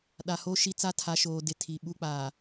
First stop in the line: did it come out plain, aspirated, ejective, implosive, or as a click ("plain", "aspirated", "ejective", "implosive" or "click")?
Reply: implosive